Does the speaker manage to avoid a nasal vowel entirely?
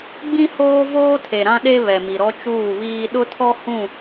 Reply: no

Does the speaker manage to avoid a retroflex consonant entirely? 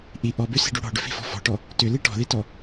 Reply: no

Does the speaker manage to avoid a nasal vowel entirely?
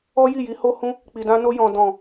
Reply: no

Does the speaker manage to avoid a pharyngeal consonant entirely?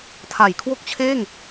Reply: yes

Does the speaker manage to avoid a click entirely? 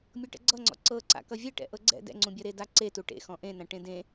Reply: no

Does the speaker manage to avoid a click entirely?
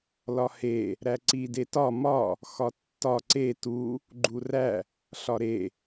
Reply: no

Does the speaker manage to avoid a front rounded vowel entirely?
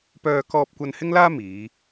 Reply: no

